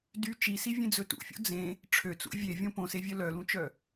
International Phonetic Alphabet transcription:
d y t͡ʃ i s i vʲ ẽ d͡z ɵ t ṵ fʲ o̰ d͡z ẽ | ʈ͡ʂʰ ø t͡s ṵ vʲ e vʲ õ p õ s e vʲ œ l œ l ũ t͡ʃ œ

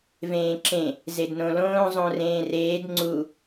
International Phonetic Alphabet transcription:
v ẽː ǁ ẽ | z e d n õ l õː zˤ õ r ẽː r eː d ŋ͡ǀ u

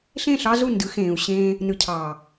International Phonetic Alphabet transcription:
ɬ ẽ˦˨ ɬ ɑ˦ z u˦˨ n d ɯ˨˦ x ẽː˨ u̯ ɕ ẽː˦ | n ɯ˨ cʰ ɑː˨

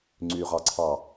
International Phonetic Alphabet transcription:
ŋ͡ǀ y ʁ ɑ ǀʰ ɑ

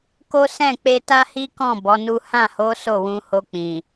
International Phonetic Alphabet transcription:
k o˦ s ɛ̃˦˨ k͡p e˧ t a˦ h i˦ k ɔ̃˦˨ b ɔ˨˦ n u˦ h ã˦˨ h o˨˦ s o˦˨ w ũ˧ h o˧ k͡p ĩ˨

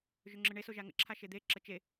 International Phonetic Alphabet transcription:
ʒ ʏ ŋ͡ǁ ɯ ɳ e s o ʒ a ŋ ə̰ ǁʰ a ʃ e d̪ e ǁ ə t͡ʃ e

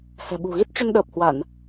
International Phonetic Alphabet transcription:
h ɛ̤˨˩ ɓ ṳ˨˩ ɣ i˦˥ t̚ t͡ɕ ə˧ n ɗ əː˨˩ p̚ h w a˧˩˨ n

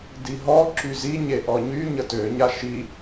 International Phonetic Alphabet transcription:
d i ɦ ɔ ǁ y z i ɲ e ʔ ɔ ɲ y ɲ ə t ø ɲ a ʃ i

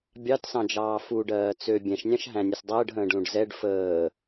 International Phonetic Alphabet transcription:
bʲ ɑ t s ɑ̃ d͡ʒ ɑː f u ɖ ɜː t͡s ø bʲ ɛ̃ ʃ nʲ ɑ̃ ʃ ɦ æ̃ nʲ ə s dˤ əː ɖ ɦ ə̃ː ɖ l ũ ɖ z ɛ ɖ f əː

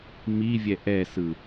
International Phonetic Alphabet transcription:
m i vʲ ɛ ʔ ɛ s ɯ

